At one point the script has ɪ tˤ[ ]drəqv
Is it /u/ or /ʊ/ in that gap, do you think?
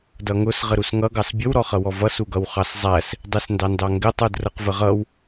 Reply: u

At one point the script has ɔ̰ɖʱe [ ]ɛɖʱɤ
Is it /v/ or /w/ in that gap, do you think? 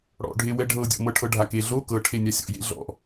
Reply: w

